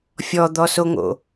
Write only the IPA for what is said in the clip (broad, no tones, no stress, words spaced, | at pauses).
fʲɔd̪ɔsoŋo̰